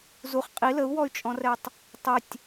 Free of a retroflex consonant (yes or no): yes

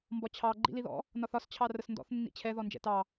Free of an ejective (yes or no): yes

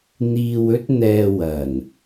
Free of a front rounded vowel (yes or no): yes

